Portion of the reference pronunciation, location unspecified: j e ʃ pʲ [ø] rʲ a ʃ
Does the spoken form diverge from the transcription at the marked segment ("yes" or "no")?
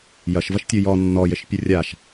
yes